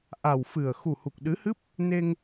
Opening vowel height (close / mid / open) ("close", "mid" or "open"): open